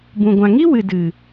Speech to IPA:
bũ˨ɡʷã˨ŋi˦wɨ˨ dɨ˨

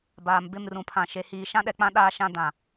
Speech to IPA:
baː˨mbɪ˦˨mrũ˨pʰã˨ ʃe˨hiː˨ ʃã˦ɗɛ˨k͡pã˦ ɗaː˦ʃã˦ dã˨

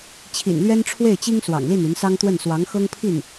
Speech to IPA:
t͡ɕʰḭ˨˩nlɥɛ˥nʈ͡ʂʰwe˥˩ɪ̯t͡ɕi˥ŋ swɑ̰˨˩ŋli˥˩ny˧˥n sɑ˥ŋt̪wə˥˩n swɑ˧˥ŋxɤ˥ŋpʰi˥˩n

